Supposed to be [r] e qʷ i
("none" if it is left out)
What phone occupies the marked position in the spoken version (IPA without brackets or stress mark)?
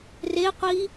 r